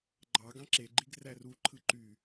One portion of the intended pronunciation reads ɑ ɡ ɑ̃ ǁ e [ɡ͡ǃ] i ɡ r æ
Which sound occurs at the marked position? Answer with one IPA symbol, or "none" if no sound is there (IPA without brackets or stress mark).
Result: ɡ͡ǃ